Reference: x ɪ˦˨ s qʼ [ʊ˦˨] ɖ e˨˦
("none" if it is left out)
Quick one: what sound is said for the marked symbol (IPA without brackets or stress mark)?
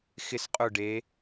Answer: ʊ˦˨